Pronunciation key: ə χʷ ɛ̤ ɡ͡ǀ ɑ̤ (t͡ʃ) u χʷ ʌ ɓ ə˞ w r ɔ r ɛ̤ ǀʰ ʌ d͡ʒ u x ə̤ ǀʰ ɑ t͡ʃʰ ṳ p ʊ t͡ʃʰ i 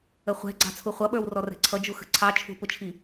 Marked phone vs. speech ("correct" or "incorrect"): incorrect